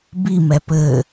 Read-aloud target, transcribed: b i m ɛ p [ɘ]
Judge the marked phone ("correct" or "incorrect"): correct